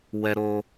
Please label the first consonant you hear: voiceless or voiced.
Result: voiced